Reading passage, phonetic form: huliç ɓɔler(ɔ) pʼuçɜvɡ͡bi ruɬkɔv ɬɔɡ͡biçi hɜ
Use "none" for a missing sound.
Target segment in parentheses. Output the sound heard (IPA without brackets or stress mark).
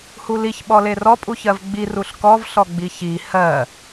ɔ